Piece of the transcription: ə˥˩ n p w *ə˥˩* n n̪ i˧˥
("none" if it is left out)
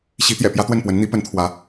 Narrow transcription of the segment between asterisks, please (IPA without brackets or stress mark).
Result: ə˧˥